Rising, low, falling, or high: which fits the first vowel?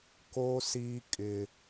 high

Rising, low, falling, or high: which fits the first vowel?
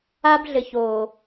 high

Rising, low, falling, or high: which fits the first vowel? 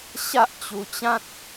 high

